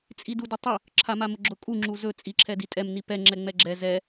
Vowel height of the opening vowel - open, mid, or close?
close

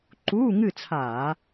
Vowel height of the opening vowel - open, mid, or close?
close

